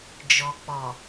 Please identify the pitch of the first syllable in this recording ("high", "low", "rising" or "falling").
low